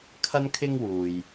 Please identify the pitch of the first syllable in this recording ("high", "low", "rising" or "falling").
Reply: high